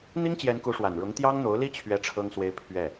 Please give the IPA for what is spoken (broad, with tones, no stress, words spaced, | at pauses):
n̪i˥ŋt͡ɕjɛ˧˥n ku˧˥ʂwa˨˩n ɻʊ˧˥ŋ t̪jɑ˥ŋn̪o˧˥ʊ̯li˥ t͡ɕʰɥɛ˥ʈ͡ʂʰɤ˥ŋswe˥ɪ̯ pʰɥɛ˥˩